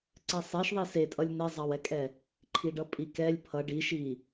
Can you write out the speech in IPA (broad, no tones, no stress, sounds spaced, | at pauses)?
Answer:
ǀ ɛ sˤ e ʃ ðˤ i s e tʼ ʌ lʲ n ɛ zˤ ɑ w ɛ kʼ ɛ | ǃʰ i ɖ ʌ pʼ i k ɛ lʲ pʰ ʌ ɖ i ʃ i